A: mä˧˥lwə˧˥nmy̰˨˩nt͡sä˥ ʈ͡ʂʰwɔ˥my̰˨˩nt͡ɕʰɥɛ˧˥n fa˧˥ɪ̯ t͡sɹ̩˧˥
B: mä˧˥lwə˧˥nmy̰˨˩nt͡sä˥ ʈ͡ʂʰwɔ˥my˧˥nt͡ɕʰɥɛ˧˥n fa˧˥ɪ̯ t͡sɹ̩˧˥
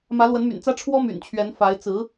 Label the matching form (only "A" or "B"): A